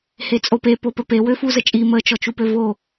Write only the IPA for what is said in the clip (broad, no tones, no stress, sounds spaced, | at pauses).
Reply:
h e t͡sʼ o p e p o p ə p e w ø f u z ə t͡ʃʼ i m ə t͡ʃ ɔ t͡ʃ u p ø v o